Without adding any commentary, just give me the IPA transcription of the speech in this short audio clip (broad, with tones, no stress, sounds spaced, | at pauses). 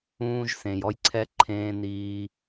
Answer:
ũː˧ ʒ s ẽ˨ j ɔ˧ j ǀʰ ɛ˧ ǃʰ ẽː˧ n iː˧